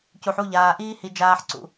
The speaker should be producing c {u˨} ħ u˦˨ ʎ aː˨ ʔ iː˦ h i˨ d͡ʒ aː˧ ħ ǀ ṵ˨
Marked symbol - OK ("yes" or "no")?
yes